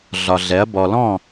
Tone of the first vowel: low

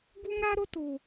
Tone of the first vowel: high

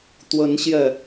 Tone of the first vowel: rising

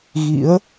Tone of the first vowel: rising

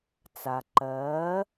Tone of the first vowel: low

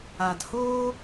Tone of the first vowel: low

